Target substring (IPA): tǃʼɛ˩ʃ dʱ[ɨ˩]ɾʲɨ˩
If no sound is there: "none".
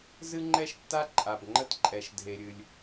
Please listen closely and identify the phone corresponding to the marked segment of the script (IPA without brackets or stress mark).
e˩